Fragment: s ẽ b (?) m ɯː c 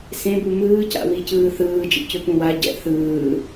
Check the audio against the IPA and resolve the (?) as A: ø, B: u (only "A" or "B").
B